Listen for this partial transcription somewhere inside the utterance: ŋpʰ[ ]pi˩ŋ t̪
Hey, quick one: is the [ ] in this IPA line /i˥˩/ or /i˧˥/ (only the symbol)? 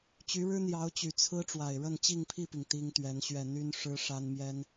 i˥˩